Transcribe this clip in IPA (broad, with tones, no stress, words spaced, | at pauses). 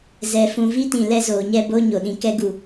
zɛ˨fũ˨vi˦tĩ˨ lɛ˦zoː˨ɲɛ˦ bo˦ ɲo˨ɗĩ˨ kɛ˦ ɡu˨